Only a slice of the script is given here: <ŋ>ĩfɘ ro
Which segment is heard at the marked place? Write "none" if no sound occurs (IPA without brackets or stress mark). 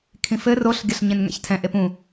kʰ